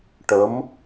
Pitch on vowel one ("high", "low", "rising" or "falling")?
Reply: rising